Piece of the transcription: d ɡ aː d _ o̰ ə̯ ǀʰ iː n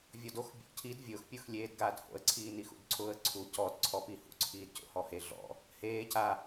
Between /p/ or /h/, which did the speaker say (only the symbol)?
h